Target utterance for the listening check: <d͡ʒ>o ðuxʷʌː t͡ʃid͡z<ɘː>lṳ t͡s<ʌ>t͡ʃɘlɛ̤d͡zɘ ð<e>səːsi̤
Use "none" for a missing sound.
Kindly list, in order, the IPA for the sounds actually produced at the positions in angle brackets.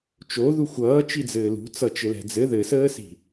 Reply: t͡ʃ, ɘː, ʌ, ɘ

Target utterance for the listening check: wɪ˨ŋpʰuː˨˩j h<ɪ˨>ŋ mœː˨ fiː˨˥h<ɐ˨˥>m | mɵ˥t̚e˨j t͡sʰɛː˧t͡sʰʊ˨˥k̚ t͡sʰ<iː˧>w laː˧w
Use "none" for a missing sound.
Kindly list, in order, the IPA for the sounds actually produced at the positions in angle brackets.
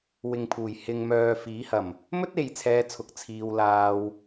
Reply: ɪ˨, ɐ˨˩, iː˧

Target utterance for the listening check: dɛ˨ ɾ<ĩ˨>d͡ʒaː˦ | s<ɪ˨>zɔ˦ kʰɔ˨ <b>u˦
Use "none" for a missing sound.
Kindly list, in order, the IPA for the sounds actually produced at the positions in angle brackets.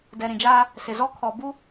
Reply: ĩ˨, ɪ˨, b

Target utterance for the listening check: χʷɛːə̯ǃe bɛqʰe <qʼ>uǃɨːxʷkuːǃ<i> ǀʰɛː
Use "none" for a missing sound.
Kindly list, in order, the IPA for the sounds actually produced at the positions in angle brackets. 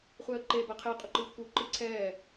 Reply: qʼ, ɨ

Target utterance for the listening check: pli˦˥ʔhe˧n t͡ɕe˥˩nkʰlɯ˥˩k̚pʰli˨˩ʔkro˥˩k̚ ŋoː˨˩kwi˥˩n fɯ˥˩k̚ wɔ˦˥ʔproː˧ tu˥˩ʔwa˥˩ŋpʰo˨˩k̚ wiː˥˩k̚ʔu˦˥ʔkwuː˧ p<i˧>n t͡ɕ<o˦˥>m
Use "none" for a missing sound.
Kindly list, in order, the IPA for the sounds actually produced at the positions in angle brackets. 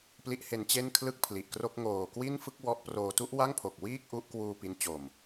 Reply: i˦˥, o˨˩

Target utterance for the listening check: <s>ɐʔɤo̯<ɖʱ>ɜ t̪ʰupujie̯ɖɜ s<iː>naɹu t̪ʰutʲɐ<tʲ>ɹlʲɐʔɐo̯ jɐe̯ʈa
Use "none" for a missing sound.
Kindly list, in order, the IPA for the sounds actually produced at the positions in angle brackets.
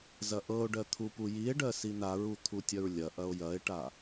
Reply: z, ɖ, i, none

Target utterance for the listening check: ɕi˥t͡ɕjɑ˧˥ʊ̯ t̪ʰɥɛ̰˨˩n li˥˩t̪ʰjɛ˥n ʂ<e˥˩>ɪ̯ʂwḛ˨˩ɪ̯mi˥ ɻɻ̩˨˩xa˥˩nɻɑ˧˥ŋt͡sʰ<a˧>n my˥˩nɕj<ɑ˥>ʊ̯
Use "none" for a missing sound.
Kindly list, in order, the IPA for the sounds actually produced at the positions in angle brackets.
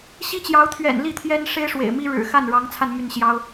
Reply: e˥, a˧, ɑ˥

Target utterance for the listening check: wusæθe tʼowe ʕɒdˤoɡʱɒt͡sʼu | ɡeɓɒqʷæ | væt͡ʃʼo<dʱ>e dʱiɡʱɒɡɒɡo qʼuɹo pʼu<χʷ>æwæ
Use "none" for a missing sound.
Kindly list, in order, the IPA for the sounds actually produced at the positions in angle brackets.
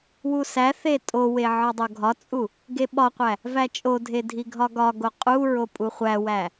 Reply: dʱ, χʷ

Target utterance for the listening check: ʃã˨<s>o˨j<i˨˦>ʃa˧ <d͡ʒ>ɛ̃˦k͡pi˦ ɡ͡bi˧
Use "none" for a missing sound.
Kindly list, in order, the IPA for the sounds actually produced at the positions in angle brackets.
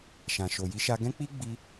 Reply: ʃ, i˨˦, ɡ

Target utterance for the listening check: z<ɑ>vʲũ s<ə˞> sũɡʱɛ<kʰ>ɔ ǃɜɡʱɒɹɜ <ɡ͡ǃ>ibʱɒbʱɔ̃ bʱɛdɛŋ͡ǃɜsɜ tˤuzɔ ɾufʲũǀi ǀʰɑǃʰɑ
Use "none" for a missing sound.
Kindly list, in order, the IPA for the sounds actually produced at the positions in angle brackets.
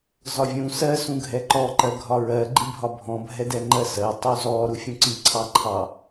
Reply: ɒ, ɜ, ǃ, ɡ͡ǃ

